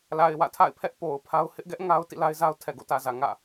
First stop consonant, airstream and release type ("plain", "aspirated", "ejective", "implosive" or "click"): aspirated